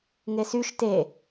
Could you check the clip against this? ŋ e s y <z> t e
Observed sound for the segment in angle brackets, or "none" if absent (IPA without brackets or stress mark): ʃ